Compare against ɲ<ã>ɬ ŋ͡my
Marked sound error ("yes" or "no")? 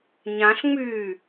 no